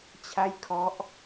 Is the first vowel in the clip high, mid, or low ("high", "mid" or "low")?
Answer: low